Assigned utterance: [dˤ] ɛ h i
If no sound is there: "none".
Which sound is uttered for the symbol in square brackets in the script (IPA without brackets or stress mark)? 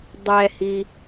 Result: dˤ